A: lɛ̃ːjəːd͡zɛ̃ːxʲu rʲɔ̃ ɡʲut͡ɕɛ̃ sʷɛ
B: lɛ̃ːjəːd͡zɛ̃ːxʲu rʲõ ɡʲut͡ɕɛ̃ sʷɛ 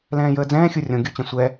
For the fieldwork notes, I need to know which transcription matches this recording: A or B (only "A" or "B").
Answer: B